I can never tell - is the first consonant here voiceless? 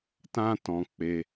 yes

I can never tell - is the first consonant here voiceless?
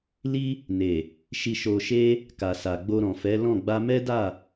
no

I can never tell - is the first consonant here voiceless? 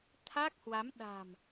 yes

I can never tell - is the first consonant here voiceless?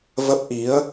no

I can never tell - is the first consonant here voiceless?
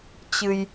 yes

